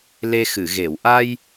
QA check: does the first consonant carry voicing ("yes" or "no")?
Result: yes